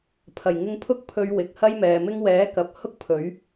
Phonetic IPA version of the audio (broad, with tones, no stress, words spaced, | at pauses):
pʰɐ˨˩j ŋɪ˧ŋpʰʊ˥k̚pʰɵ˧ɥ wɪ˨k̚hɐ˥jmɛː˨mɪ˥ŋ wɛː˨˥kɐ˨p̚ hʊ˥k̚ pʰɵ˨˥ɥ